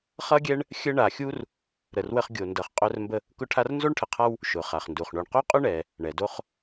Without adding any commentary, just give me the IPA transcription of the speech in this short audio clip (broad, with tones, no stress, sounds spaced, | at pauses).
χ ʌ˥ ɡʲ ɛ˥ ɳ | xʲ ə˥ ɳ a˨ xʲ u˥ r | ɾ ə˨ r w ə˦ χ ɡʲ o˨ n d ʌ˨ χ qʼ œ˦ r m b ə˦ | k ʊ˦ ʈʰ a˦ r n z o˥ ɳ ʈʰ ə˨ qʰ a˦ w | ʃ ʊ˩ χ a˩ χ n d u˩ χ ɳ o˨ ɳ q o˥ qʼ ʊ˥ ɳ ɛ˩ | ɳ ɛ˩ d o˦ χ